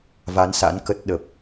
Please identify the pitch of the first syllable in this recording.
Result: rising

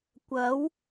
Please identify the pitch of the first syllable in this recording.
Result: rising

